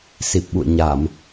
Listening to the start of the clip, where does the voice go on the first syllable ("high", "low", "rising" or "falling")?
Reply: low